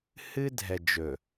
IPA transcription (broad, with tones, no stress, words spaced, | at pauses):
hɨ˦dʱɛ˨d͡ʒɵ˨